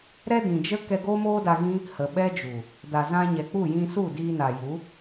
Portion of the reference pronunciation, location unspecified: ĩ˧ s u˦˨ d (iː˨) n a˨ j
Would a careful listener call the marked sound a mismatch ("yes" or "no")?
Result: yes